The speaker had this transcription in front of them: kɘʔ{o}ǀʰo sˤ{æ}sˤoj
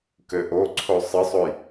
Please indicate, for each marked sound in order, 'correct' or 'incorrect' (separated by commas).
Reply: correct, incorrect